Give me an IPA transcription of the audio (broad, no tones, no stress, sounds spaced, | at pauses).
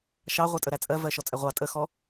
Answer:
ʃ ɑ ʁʷ ɛ tʼ ə ɾ æ t͡sʼ ɜ v ɜ ʃ ɔ t͡sʼ ɛ ʁʷ ɑ tʼ ə x ɔ